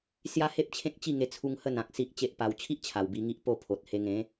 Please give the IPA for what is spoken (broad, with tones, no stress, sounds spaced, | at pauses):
s j a˦ h e˦ p̚ t͡ɕʰ ẽ˦ k̚ t͡ɕ i˥˧ ŋ e˧ t͡sʰ u˧ ŋ h ə˥˧ n ã˨ k̚ s i˦ ʔ t͡ɕ e˦ ʔ p a˧ w t͡ɕʰ i˦ ʔ t͡ɕʰ a˨˩ w b i˧ ŋ i˦ ʔ p o˥˧ pʰ o˨ t̚ h e˧ ŋ ẽ˨˦